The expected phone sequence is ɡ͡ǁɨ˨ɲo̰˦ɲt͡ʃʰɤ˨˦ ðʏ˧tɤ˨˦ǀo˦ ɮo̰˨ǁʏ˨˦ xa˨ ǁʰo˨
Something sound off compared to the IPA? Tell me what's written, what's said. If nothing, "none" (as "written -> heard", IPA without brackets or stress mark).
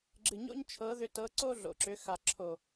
none